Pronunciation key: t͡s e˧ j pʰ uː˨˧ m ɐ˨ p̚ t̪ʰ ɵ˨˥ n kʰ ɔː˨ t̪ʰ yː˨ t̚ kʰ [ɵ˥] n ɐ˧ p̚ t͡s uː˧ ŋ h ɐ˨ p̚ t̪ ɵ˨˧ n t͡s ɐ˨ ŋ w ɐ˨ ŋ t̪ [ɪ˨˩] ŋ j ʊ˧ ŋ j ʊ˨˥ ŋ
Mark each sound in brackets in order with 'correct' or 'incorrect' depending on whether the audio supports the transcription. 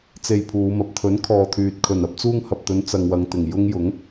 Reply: incorrect, correct

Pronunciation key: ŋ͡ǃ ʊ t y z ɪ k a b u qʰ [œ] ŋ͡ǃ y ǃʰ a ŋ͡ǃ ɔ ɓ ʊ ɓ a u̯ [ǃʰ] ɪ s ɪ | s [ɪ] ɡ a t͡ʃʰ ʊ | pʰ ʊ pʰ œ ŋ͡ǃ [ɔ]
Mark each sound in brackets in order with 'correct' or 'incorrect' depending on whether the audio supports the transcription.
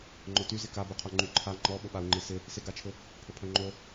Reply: correct, incorrect, correct, incorrect

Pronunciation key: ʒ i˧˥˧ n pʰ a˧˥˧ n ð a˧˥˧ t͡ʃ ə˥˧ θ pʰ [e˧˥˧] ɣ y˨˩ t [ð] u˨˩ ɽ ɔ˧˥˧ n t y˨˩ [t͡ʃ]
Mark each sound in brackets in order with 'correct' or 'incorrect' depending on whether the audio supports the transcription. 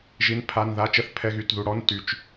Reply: incorrect, correct, correct

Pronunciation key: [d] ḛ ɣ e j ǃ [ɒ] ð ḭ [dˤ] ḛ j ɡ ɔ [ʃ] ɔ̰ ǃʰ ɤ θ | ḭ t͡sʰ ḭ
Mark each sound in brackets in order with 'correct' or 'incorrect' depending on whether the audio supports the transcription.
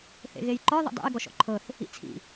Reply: incorrect, correct, correct, correct

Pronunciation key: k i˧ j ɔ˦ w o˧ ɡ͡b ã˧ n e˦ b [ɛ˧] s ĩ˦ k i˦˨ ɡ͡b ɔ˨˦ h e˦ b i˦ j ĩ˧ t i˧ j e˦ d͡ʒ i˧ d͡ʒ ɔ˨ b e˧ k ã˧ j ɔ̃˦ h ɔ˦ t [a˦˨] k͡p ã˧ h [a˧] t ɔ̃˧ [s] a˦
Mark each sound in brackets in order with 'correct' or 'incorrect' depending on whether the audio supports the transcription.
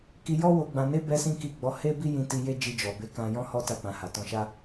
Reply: incorrect, correct, incorrect, incorrect

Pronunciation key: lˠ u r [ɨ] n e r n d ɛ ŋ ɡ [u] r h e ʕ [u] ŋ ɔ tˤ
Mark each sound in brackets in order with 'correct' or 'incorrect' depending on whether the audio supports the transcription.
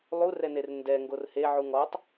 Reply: incorrect, incorrect, correct

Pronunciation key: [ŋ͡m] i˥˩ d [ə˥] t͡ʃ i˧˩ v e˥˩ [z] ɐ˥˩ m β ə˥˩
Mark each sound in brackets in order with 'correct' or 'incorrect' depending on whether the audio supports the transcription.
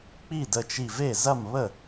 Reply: incorrect, incorrect, correct

